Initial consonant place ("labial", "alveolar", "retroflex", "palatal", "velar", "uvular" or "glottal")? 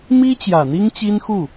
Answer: labial